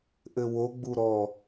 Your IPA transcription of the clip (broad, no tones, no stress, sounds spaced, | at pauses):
ʔ ɘ w o ɡ͡b u ɾ ɔ